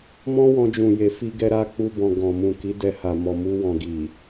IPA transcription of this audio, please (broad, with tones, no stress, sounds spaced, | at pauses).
m ɔ̃˦ w ɔ̃˧ d͡ʒ ũ˨ j e˨ f i˧ ɡ ɛ˧ ɾ a˧ k͡p u˧ b ɔ̃˨ ɡ ɔ̃˨ m ũ˨ k i˨˦ d ɛ˧ h a˨ m ɔ˨ m u˧ w ɔ̃˨ ɡ i˨